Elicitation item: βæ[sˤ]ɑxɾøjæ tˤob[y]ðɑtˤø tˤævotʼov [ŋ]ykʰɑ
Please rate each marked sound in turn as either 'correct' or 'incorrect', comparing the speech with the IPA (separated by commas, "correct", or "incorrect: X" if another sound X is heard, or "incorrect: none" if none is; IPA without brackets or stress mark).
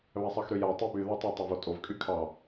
correct, correct, incorrect: kʼ